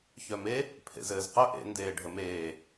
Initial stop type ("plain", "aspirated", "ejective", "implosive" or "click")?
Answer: aspirated